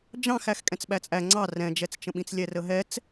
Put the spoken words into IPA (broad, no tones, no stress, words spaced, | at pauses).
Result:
d͡ʒɑ̃x æxkʼɛ̃t͡sɓæt͡sʼæ ŋ͡ǀɑ rɛ̃d͡ʒɛt͡st͡ʃə̃ɓĩt͡s lʲɛrəɦɛt͡s